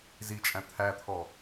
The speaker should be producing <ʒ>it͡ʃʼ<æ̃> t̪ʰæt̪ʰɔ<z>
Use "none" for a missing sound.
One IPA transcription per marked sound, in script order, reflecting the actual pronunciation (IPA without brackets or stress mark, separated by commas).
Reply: z, æ̃, none